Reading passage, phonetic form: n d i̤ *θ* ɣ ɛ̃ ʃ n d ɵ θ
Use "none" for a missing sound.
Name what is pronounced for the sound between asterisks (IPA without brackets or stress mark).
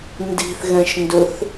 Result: θ